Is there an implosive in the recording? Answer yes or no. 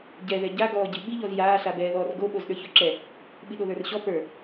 yes